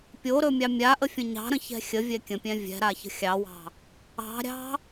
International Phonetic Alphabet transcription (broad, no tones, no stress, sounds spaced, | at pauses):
pʲ o ɾ ɵ mʲ ɑ mʲ a ʔ ə fʲ ə̃ ɲ ɑ̤ ɾ ə̃ ç ɛ̤ xʲ ə vʲ ɛ kʲ ə̃ pʲ ɛ̃ vʲ ɛ̤ ɾ a ç ə̤ xʲ ɑ w ɑ̤ | ɑ̤ ɾʲ ɑ̤